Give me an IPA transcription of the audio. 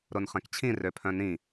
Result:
ɾ o n χ ɛ̃ k t͡ɕʰ ĩ r ø pʰ œ̃ n ĩ

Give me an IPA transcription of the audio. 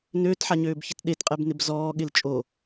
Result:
n øː t ħ a ɲ øː b ç ɪ t ɗ e t qʼ ɛ b n ɪ b z ɔː ɠ ɪ l t͡ʃʼ o

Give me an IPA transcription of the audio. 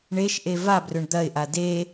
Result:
ɳ e ʃ ʔ e v a b r ɵ ɳ d̪ ɐ ɪ̯ ʔ a d e

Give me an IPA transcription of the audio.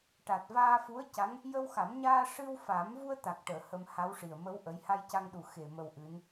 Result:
ʈ a˨˩ t̚ v aː˧ f u˧˥ ə̯ c a˧˥ ŋ | j ə˧ w x a˨˩˦ m ɲ aː˧ ʂ ɨ˧ w f a˨˩˦ m v u˧ ə̯ t̪ a˨˩ k̚ ʈ əː˨˩˨ h ə˧ m h a˧˥ w ʂ i˨˩ ə̯ m ə˧˥ w ʔ ə˧˥ j h a˧ j c a˧ ŋ ɗ u˨˩ x e˨˩ m ə˧ w ʔ ɨ˧˥ n

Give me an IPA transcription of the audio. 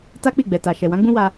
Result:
t a˦ k͡p i˦˨ ɡ͡b ɛ˨ t a˨ ʃ ɛ˨ w ã˨˦ ɡ͡b ũ˦ w a˧

